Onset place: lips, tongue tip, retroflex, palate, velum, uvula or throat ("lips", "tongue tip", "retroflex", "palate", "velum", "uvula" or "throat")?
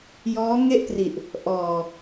palate